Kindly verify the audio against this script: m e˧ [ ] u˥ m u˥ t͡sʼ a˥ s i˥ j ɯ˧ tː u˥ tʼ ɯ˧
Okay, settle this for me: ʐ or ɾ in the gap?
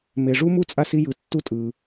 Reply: ʐ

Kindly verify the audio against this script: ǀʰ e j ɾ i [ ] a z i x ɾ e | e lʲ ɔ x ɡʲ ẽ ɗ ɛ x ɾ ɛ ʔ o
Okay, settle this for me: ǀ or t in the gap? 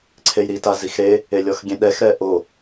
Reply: t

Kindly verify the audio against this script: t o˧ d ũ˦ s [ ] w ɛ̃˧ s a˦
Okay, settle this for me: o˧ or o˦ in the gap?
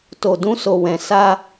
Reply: o˧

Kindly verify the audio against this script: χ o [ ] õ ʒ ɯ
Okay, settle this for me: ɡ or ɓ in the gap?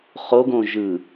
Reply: ɡ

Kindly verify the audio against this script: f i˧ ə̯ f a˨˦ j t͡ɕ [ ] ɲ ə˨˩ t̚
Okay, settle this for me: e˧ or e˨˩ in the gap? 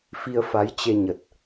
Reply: e˧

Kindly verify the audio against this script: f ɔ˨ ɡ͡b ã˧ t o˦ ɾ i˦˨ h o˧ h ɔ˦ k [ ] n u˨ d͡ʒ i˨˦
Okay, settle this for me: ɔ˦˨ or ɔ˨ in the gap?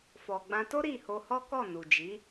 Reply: ɔ˦˨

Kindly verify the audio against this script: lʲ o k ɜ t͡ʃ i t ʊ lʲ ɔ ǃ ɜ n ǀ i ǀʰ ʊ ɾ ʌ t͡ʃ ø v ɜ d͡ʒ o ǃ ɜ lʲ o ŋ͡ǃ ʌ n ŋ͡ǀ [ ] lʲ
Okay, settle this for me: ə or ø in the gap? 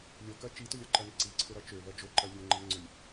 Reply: ø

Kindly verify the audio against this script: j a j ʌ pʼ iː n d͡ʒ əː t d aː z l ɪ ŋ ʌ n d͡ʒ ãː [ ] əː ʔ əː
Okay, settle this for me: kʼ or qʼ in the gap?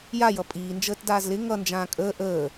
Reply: kʼ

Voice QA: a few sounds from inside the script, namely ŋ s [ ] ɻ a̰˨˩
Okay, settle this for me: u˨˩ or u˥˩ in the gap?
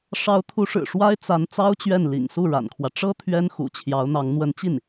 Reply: u˥˩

